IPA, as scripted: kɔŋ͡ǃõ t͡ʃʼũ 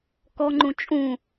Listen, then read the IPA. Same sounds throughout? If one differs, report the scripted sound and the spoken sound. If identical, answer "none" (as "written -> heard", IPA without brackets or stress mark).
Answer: õ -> ũ